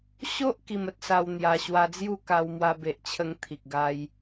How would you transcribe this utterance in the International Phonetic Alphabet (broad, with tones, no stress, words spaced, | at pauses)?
ɕo˦ʔ ki˧mə˦t̚sa˧w n̪ja˧ ɕwa˧d͡zju˥˧ ka˧wmwa˧be˨ʔt͡ɕʰə˧ŋ t̪ʰi˨k̚ɡa˧j